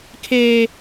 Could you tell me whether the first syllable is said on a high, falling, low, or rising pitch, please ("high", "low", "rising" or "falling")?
high